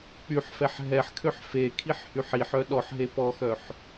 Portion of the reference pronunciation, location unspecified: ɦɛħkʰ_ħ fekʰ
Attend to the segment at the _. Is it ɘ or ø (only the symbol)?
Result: ø